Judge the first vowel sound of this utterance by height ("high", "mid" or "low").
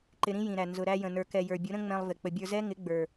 high